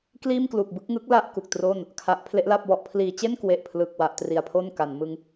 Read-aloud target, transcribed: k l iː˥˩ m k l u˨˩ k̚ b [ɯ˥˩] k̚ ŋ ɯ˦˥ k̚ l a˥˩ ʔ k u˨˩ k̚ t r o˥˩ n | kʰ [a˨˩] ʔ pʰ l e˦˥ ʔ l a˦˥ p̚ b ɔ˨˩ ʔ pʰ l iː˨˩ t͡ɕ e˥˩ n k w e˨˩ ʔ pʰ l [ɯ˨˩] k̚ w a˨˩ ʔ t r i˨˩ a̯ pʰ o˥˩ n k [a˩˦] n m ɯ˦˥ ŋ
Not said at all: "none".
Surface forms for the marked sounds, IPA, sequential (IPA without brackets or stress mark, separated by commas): ɯ˥˩, a˨˩, ɯ˨˩, a˩˦